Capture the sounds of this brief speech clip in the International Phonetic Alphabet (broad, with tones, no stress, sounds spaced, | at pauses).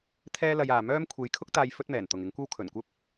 t̪ʰ ɛː˥ l ɐ˧ j aː˨ m œː˥ m kʷʰ e˨˧ j kʰ ʊ˥ k̚ t̪ aː˧ j f ɵ˥ t̚ m ɛː˨˩ n t̪ ʊ˨ ŋ ɪ˨˥ ŋ kʷ ɐ˥ w kʰ ɵ˨˩ n kʷ ɐ˥ p̚